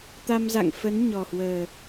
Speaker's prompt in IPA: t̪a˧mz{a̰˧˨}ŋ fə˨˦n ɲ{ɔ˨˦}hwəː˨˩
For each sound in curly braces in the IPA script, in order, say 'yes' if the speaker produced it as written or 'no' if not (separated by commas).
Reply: yes, no